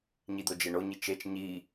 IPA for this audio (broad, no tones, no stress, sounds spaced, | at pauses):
ɲ i d̪ o d͡ʒ e ɳ o ɲ i t͡ʃ e t͡ʃ ɲ i